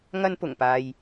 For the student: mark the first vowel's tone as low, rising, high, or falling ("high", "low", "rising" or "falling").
high